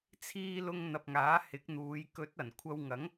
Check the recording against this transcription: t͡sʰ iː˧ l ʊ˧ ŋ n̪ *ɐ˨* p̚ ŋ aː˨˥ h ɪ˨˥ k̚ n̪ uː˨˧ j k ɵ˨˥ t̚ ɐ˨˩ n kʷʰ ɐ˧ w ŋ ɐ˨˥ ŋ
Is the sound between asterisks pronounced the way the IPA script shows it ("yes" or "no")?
yes